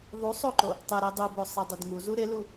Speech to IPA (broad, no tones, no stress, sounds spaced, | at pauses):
ðˤ u sˤ o ǃ o | tˤ ɪ ɾ i dˤ u b o sˤ i dˤ y d ŋ u z u ɾ ɪ l u